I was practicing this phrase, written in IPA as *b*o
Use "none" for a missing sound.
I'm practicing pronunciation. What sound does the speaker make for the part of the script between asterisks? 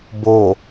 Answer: b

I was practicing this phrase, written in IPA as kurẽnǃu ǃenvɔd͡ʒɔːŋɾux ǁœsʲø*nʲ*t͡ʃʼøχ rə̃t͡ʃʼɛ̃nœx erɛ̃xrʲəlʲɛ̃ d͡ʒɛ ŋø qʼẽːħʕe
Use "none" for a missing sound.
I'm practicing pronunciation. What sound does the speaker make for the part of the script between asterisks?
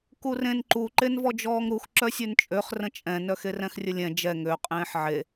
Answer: n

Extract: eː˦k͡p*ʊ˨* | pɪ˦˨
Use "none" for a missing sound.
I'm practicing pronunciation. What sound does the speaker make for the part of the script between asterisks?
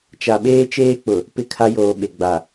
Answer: ʊ˨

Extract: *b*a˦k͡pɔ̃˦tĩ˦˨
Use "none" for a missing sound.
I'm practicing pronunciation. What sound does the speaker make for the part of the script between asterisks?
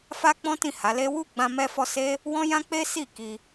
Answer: f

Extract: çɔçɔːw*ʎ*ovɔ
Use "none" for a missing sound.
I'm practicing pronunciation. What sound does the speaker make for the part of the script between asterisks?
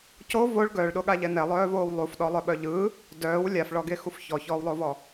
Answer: lˠ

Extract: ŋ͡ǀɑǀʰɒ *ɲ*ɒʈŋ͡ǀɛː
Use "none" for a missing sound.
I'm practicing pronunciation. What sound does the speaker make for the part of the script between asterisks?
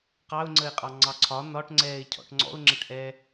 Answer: n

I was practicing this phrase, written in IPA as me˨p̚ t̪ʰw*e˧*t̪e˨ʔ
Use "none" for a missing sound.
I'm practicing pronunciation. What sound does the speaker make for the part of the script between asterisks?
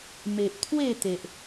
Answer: e˥˧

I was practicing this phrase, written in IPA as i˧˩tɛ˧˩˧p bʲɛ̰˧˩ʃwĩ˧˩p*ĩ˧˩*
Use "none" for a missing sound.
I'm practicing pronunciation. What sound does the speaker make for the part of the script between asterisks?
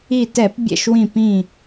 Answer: ĩ˧˩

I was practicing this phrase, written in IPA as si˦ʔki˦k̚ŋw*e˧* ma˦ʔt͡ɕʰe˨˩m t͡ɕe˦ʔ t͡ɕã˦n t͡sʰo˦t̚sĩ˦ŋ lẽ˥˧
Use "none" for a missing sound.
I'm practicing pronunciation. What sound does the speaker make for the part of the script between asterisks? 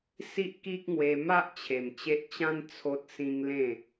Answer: e˧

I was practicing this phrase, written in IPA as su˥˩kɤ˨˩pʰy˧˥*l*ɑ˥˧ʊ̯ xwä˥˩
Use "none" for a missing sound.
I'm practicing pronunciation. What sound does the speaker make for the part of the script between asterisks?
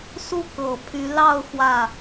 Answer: l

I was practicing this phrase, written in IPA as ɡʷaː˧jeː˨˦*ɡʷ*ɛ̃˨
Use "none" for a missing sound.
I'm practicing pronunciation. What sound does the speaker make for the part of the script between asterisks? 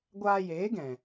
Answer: ɡ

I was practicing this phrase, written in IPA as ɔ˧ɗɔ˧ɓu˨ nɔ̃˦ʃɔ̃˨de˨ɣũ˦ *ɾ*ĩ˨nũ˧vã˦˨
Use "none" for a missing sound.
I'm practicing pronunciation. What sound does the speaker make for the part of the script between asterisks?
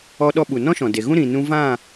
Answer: ɾ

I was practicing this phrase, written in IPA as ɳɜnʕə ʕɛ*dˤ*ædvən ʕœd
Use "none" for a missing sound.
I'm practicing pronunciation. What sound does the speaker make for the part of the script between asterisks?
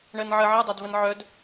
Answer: dˤ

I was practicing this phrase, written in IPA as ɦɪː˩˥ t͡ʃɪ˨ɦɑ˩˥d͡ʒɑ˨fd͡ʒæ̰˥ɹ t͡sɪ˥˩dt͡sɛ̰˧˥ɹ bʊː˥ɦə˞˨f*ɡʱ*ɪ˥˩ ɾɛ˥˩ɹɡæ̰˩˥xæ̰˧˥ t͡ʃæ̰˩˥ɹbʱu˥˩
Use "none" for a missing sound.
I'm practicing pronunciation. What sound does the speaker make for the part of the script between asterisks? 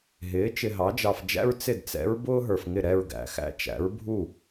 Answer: ŋ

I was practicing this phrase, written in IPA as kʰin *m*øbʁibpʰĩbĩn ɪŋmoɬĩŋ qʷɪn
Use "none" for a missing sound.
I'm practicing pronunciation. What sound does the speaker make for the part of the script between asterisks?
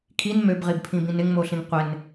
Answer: m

